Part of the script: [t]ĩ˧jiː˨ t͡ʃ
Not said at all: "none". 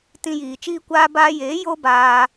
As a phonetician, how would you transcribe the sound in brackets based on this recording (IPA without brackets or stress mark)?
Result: t